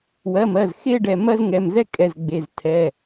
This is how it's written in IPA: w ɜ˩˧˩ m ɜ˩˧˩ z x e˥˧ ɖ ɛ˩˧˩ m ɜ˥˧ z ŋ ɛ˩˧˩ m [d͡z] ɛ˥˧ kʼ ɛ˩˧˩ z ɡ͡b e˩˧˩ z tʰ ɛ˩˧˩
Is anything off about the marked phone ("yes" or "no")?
yes